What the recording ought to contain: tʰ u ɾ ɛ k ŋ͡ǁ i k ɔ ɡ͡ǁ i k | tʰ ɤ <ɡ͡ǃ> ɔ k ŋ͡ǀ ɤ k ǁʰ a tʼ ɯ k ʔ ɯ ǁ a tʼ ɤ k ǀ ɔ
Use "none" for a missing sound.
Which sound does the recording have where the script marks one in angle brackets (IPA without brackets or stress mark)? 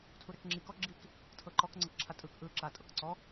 ǃ